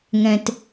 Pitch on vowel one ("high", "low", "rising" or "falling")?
low